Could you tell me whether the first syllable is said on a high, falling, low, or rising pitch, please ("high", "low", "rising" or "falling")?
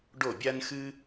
falling